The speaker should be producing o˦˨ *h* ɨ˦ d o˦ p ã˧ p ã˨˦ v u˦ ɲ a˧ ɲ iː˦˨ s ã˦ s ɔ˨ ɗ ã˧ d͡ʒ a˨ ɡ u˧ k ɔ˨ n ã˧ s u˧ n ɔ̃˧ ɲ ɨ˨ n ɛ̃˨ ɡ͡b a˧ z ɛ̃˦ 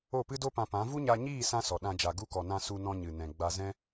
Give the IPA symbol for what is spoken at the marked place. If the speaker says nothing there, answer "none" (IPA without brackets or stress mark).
p